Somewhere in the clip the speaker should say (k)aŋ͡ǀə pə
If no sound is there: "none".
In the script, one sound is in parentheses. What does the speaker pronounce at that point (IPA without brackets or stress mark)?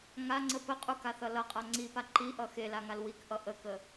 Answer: ŋ